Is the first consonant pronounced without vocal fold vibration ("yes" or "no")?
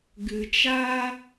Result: no